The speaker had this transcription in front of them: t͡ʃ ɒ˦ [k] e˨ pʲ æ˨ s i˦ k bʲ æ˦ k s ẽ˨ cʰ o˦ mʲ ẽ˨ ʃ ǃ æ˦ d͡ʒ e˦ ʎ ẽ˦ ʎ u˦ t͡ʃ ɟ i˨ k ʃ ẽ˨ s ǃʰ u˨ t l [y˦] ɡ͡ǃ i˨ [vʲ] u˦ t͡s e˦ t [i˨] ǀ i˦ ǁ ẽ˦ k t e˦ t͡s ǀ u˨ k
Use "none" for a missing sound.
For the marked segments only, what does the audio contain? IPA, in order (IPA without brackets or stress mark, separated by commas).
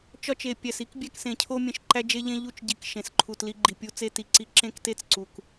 t͡ʃ, i˦, pʲ, i˨